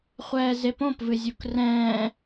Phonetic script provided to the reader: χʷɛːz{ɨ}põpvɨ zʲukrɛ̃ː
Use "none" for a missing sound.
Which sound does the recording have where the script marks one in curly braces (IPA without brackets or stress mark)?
e